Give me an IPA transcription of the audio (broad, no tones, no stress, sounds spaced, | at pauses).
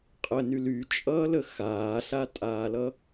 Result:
qʼ ə n y l y t͡ʃʼ ʌː l ə x aː ɬ a tʼ aː l ʌ